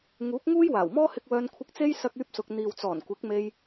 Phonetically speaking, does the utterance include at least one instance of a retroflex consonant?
no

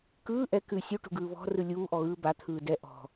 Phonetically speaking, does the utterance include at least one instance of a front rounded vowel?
no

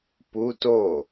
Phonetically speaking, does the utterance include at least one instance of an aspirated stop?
no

